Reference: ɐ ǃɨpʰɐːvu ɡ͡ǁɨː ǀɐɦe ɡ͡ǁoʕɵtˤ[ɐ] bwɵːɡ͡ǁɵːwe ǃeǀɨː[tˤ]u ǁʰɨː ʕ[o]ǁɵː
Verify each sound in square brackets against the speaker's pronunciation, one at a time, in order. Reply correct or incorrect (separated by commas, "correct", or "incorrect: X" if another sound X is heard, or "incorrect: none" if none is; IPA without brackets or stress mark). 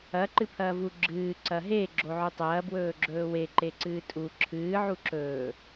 incorrect: ɐː, incorrect: tʼ, incorrect: u